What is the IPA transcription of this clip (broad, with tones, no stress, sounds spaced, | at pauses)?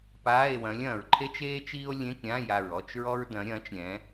p aː˧˥˧ e̯ w ɐ̃˨˥ lʲ ɐ̃ː˩ ɹ ǃʰ e˥ t͡ʃ eː˥ t͡ʃ iː˥ o̯ lʲ ẽ˧˥˧ k ɾʲ ã˧˥˧ j a˧˩ ɹ ɔ˧˥˧ t͡ʃ ɹ ɔ˥ ɹ d ɐ̃˨˥ ɾʲ ɐ̃ː˨˥ t͡ʃ ɾʲ ɛ̃˨˥